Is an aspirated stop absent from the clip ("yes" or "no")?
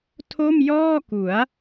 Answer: no